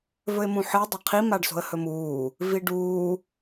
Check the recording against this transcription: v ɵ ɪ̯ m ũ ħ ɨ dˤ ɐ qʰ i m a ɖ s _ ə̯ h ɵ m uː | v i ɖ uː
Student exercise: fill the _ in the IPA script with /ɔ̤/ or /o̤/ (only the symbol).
o̤